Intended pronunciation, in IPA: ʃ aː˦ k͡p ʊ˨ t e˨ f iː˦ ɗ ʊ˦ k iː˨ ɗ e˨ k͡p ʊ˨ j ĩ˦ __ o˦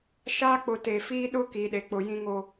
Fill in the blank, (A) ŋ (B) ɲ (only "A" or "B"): A